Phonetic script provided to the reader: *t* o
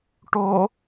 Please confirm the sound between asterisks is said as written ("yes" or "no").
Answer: no